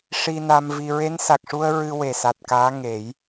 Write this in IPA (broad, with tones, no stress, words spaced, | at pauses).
ʂi˧na˧mvi˧ ɹe˧˥nsa˨˩k̚ʂu˧ə̯ ɹɨ˧we˨˩ sa˨˩t̚kaː˧˥ ŋe˨˩˦j